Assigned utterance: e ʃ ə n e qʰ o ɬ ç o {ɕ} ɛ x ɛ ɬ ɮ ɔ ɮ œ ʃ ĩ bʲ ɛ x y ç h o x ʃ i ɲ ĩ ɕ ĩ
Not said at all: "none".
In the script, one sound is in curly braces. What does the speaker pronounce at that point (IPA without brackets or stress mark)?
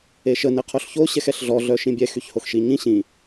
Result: ɕ